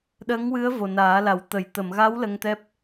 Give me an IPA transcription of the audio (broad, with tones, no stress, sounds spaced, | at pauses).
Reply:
ɗ ə˧˥ ŋ w ɨ˧˥ ə̯ v o˨˩ n aː˨˩˦ l a˨˩˦ w t̪ ə˨˩˦ j t̪ ə˨˩˨ m ɣ a˧˥ w l ə˧ ŋ t̪ ɛ˦˥ p̚